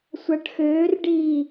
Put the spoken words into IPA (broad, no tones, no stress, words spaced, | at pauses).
sʷaʈxøːrɖiː